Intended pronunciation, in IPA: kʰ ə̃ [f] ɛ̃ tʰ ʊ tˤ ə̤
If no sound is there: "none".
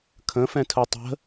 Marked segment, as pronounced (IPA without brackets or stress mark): f